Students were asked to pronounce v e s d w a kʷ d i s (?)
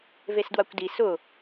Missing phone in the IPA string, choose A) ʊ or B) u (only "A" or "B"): A